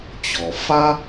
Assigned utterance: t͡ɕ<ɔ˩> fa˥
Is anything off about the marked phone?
no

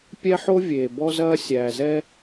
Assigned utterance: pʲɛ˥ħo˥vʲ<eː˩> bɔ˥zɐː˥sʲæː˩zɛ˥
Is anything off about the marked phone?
no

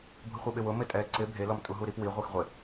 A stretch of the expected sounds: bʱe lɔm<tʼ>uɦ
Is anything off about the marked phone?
no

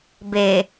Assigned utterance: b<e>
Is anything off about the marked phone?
no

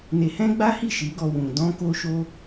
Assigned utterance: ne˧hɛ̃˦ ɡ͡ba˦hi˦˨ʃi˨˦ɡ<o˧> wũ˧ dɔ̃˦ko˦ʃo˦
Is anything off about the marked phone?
yes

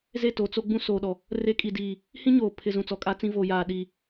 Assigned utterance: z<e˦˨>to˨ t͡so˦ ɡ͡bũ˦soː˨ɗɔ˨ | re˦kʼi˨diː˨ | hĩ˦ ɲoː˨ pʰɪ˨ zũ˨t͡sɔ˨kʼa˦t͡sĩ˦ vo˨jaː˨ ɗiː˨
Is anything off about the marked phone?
no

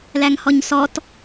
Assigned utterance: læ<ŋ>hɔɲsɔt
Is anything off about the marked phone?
no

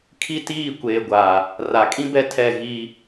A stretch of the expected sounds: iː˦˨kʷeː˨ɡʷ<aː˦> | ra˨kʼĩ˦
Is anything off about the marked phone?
yes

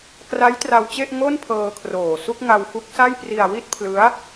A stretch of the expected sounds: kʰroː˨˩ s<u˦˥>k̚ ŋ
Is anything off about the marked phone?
yes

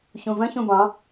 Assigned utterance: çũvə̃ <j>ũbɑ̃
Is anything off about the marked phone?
yes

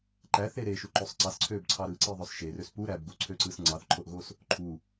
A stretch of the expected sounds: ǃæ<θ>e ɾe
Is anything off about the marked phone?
no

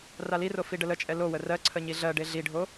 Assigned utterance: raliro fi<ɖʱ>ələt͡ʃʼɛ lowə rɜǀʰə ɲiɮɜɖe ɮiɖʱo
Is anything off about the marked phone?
yes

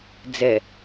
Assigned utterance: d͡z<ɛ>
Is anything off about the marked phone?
no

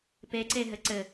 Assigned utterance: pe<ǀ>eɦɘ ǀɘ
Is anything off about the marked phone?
no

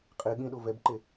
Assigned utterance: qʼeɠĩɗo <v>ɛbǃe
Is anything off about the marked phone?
no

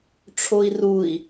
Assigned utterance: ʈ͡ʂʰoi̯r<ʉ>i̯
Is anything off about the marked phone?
yes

